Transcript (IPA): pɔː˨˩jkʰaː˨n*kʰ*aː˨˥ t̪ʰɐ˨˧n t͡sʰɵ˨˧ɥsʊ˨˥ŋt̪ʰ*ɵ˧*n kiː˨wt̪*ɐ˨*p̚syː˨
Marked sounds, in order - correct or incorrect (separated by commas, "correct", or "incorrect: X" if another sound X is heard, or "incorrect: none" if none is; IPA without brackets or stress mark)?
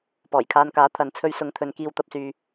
incorrect: k, incorrect: ɵ˨, correct